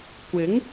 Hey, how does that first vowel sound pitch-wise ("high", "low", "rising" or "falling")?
rising